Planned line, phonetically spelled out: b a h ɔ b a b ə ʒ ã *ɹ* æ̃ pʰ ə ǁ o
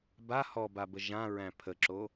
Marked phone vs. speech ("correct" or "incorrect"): correct